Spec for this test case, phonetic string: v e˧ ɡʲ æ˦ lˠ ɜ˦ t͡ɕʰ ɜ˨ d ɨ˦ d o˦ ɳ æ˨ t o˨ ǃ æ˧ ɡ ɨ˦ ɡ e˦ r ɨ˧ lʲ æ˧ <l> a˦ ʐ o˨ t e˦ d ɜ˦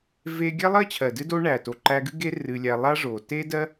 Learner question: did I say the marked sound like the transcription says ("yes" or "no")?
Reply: no